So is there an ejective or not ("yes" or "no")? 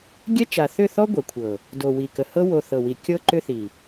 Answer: no